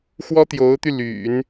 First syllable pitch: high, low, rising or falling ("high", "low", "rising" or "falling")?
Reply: high